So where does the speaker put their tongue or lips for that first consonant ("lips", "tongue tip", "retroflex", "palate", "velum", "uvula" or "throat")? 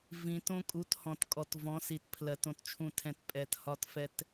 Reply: lips